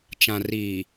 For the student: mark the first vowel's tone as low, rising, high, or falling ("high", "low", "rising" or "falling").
low